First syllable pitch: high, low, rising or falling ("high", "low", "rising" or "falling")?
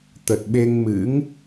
low